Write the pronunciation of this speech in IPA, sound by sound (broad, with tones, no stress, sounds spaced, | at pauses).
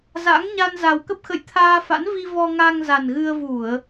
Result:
z a̰˧˥ ŋ ɲ a˧ n z a˨˩ w k ə˦˥ p̚ x ə̰˧˨ j t̪ʰ aː˧ f a̰˧˥ n v i˧ v ɔ˧ ŋ a˧ ŋ z a˨˩ n ɣ ɨ˧ ə̯ v u˧˩˨ ə̯